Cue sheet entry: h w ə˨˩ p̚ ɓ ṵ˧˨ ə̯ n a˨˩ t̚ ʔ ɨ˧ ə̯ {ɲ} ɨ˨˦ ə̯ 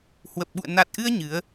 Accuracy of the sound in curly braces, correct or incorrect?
correct